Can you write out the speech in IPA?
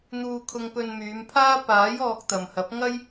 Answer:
n̪ uː˧ kʰ ʊ˧ ŋ p ɵ˧ n m yː˨˧ m pʰ aː˥ p aː˨˥ j ɔː˧ k̚ t̪ ɐ˨ m h ɐ˨˥ p̚ ŋ ɐ˥ j

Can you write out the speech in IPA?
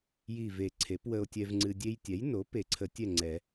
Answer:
j i˧˩ v e˨˩˦ ǀʰ e˩˥ p w ə˧ o̯ tʲ ɛ˧ v ŋ͡ǀ ɨ˧ dʲ e˧ j tʲ ɛ˩˥ j n o˩˥ p e˨˩˦ ǀʰ ə˨˩˦ tʲ ɛ˥˨ ŋ͡ǀ ɛ˨˩˦

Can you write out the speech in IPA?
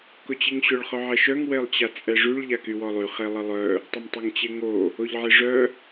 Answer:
k ʊ t͡ɕ i ŋ ɕ ʊ ɭ χ œ ʕ ɛ ʃ œ ŋ w e lˠ t͡ɕ a t͡sʼ ɛ ʐ y ɭ ʎ a k y w ɔ lˠ y χ e lˠ ə lˠ œ | tˤ ə m tˤ ɛ ŋ t͡ɕ e ŋ o | o ʎ ʕ e ʐ œ

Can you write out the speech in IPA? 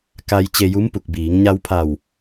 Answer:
k a˧ j t͡ɕ e˧ j u˧˥ m p u˧˩ k̚ b iː˩˧ ŋ ɲ a˧ w pʰ a˧˩ w

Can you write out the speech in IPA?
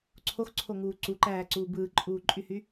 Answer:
ǀʰ o x ǀʰ o ŋ uː ǀ u ǃ æː ǀ uː b ɯː ǃʼ uː ǃʼ y h y

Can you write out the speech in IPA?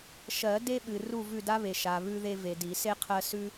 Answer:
ʃ ɜ˨˩˦ d e˦ ɓ ɨ˨ r u˦˨ v ʉ˦˨ d a˦ β e˨ ʃ a˨ β ʉ˦ ð e˦ v e˨ d i˨˩˦ s e˦ qʰ ɜ˦ s ʉ˦

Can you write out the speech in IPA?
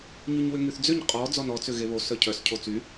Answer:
ɲ y ɲ w ʏ ŋ y θ d͡z ʏ ɲ qʼ ɔ d͡z ɔ n ɔ t͡s ʏ ɣ e β o s œ cʰ œ s cʰ o t͡s y

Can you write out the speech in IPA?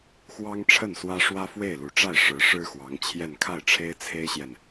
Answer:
x w ɑ˥ ŋ ʈ͡ʂʰ ə˥˩ n s w ä˥ ʂ w ä˥ f w e˥˩ ɪ̯ l u˨˩ ʈ͡ʂ a˥˩ ɪ̯ ʂ ɻ̩˧˥ ʂ ɻ̩˥ x w ɑ˧˥ ŋ t͡ɕʰ j ɛ˥˧ n kʰ a˥˩ ɪ̯ ʈ͡ʂʰ e˥ ɪ̯ t͡sʰ e˥ ɪ̯ ɕ j ɛ˨ n

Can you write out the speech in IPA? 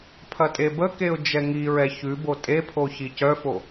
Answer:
pʰ ɐ tʼ e b ə k e ʊ̯ d͡ʒ ɛ ŋ i ɹ ɛ ç ʉ b o tʼ e pʰ o ç i c œ f o

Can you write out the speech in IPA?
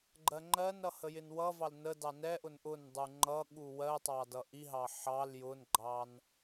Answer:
ɡ͡ǃ ɜ ŋ͡ǃ ɜ n ɾ ʌ h ə j ɪ n w ʌ v ɑ l n ə d ɑ n ɛ ʔ ʊ n ʔ ʊ n dˤ u ŋ͡ǃ ʌ ɠ u w ɜ tˤ ɑ d ʌ ʔ i ɦ ɑ ħ ɑ l j ʊ n ɡ͡ǃ ɑ n

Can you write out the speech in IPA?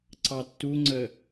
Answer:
ǀ ɑ tː u ŋ͡ǀ ə

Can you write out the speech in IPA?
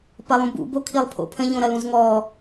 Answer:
p ɐ lˠ ũ b ṵ b o kʰ i lˠ pʰ o̰ pʰ ə̃ ʎ õ ɾ ɐ l ũ z ŋ ɔ

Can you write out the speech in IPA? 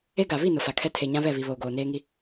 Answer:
e˦ ɡ a˨ β i˦˨ n ʊ˨ f a˨ kʰ ɛ˦ tʰ e˨ ɲ ã˦ β ɛ˦˨ β i˨ β oː˨ ɡ oː˨ n eː˦ ŋ i˦

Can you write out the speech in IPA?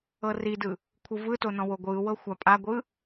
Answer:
ɤ r i d ɯ | kʷʰ ɯ v ɯ t o n ɔ̃ w o ɡʷ ɯː w ɤ xʷ a pʼ a ɡʷ ɯ

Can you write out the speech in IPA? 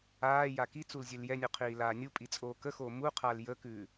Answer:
aː j a k i t͡s u l zʲ ʉ l j ɛ nʲ u qʰ iː l aː nʲ u pʼ i t͡sʼ oː k ə x oː m u qʰ aː l j ə k ʉː

